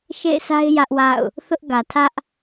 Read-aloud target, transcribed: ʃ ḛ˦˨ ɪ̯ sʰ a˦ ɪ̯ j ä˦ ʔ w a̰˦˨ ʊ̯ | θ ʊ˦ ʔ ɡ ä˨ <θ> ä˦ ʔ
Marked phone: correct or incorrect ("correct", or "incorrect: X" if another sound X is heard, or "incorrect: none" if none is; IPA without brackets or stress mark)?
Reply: incorrect: tʰ